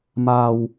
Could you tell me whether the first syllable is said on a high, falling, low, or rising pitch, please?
low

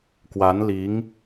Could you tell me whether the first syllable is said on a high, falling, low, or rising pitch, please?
rising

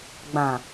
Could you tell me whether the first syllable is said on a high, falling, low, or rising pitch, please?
low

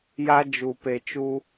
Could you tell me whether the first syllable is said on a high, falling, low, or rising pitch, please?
high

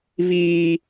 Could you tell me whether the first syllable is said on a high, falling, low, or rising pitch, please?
high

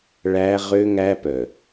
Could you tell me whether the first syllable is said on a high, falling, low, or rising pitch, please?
high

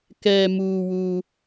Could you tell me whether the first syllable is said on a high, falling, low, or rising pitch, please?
high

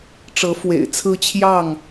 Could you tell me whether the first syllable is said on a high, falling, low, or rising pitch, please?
rising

